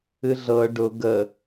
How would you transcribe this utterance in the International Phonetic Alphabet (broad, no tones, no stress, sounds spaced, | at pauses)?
ɨ ɮ ɤ ɖ ʊ ɡ ə